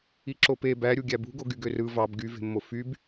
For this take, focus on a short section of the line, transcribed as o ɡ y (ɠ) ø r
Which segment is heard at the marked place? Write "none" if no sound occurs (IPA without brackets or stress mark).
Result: ɡ